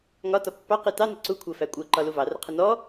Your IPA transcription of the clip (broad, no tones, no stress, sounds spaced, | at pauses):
ŋ ɒ t ɒ pː ɑ q i t ɑ n ɪ ǀ u kʷʰ ɜ f æ kʷʼ ɜ ǃ ɒ l u v ɑ r ə qʰ ə n ɔ